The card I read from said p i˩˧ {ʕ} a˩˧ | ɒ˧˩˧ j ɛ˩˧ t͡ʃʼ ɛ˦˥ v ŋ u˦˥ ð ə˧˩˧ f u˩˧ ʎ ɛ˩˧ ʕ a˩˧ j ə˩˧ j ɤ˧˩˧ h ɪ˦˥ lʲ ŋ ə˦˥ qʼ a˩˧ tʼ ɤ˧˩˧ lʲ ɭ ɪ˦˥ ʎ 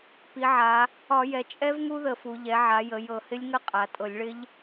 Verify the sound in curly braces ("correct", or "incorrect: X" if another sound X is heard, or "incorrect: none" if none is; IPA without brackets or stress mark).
correct